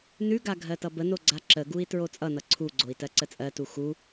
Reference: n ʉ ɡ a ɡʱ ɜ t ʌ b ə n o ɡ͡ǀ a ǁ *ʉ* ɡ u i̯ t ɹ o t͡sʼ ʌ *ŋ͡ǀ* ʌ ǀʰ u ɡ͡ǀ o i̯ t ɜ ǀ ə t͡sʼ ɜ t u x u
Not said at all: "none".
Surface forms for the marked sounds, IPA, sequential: ə, n

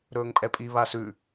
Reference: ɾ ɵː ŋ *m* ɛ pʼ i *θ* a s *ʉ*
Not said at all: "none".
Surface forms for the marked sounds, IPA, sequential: pʼ, β, ʉ

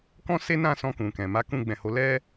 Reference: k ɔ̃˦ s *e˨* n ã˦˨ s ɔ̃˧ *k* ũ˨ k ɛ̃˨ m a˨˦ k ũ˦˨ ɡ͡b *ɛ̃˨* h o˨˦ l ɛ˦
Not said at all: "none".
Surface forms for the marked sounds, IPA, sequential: e˦, k, ɛ̃˨

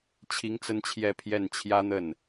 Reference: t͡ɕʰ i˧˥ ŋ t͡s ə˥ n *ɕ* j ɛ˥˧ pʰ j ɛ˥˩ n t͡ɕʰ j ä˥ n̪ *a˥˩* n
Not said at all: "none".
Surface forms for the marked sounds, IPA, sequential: t͡ɕʰ, ə˥˩

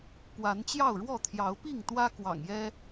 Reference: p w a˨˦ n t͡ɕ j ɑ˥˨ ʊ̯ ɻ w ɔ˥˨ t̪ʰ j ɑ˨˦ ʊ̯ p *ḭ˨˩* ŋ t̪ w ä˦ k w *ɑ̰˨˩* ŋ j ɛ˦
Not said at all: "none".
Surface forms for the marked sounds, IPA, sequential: i˥˨, ɑ̰˨˩

